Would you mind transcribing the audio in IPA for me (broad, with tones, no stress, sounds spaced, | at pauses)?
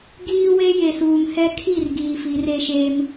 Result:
ɡ iː˦ w e˦ j e˨ s uː˨ ŋ h ɛ˦ kʰ i˦˨ r ɡ iː˨ f i˨˦ r e˦ ʃ e˦ m